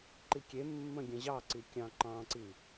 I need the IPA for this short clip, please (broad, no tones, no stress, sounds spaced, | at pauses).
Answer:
ǃ i kʲ e mː ə̃ ɡʲ ə̃ ʑ ɑ ǀ i kʲ ɑ̃ ǃ ɑ̃ ǀ i